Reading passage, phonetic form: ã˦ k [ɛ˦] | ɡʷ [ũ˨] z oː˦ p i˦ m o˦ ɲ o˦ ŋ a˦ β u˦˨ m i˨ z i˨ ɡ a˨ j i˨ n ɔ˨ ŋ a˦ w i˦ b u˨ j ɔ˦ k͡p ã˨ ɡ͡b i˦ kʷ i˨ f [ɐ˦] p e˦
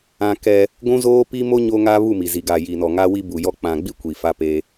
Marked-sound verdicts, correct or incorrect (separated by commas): correct, incorrect, incorrect